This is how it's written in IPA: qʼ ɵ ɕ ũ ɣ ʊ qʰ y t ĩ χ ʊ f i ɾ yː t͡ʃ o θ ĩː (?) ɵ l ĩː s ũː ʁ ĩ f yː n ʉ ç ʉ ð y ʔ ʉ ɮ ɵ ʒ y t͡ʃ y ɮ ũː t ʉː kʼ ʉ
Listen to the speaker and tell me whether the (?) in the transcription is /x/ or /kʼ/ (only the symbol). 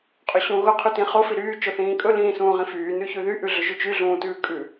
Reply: kʼ